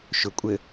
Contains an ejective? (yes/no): yes